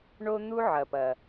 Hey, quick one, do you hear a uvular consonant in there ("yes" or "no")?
no